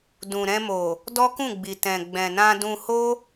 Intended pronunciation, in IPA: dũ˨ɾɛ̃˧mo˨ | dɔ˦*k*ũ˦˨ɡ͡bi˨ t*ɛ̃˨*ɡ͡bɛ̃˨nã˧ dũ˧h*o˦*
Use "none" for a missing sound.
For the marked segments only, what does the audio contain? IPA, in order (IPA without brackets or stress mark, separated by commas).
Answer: k, ɛ̃˨, o˦